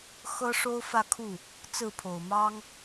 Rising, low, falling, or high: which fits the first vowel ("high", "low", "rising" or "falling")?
high